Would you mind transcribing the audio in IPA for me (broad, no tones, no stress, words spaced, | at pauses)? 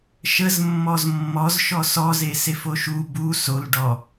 ʃəzmːɔz mːɔz ʃɔsɔze sefoʃu bu solɖɔ